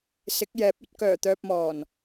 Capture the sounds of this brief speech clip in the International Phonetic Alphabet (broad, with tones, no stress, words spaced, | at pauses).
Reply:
sɪ˨˥k̚jɛː˨˥p̚ ɵ˨˥t̚ kœː˨˩t̪œː˨p̚mɔː˨˩n